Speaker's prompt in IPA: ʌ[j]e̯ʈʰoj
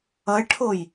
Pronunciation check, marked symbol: incorrect: none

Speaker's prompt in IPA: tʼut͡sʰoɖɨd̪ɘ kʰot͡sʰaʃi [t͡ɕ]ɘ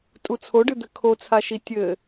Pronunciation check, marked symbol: incorrect: tʲ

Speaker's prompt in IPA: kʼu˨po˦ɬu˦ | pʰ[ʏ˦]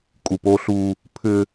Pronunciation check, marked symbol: correct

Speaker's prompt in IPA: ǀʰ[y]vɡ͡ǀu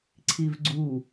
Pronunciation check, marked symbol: incorrect: i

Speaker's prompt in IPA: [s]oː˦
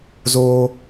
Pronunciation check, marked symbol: incorrect: z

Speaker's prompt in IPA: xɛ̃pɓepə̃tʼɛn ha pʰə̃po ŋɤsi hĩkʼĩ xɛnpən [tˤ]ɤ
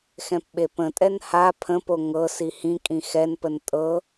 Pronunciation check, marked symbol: incorrect: tʼ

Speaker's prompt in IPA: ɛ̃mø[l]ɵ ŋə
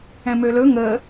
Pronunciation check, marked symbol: correct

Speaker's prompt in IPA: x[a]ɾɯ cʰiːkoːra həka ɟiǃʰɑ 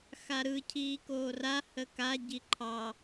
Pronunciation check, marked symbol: correct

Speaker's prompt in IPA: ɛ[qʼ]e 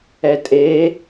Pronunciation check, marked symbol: incorrect: tʼ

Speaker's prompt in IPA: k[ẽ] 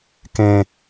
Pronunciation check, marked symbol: correct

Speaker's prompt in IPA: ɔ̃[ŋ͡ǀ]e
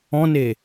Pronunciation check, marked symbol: incorrect: n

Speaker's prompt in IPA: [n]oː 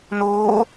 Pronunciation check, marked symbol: correct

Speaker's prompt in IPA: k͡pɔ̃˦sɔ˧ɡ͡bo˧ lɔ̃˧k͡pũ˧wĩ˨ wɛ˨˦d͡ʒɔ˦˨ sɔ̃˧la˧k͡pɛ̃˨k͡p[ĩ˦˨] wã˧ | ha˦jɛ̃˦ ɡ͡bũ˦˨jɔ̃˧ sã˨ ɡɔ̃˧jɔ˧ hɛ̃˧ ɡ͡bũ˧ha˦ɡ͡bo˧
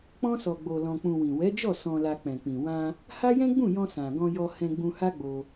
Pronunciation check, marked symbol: incorrect: ĩ˨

